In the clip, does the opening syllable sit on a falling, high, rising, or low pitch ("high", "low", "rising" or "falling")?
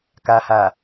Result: low